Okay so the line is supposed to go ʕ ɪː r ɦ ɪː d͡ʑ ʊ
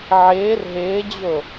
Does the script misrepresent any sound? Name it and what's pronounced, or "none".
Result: none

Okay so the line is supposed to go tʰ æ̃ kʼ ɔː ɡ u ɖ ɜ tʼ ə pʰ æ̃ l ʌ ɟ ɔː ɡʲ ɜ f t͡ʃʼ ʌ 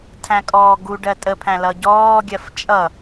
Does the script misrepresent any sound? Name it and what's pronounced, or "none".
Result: none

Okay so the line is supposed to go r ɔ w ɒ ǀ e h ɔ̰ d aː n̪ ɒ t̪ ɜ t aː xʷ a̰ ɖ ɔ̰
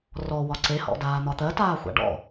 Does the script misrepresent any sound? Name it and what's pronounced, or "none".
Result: none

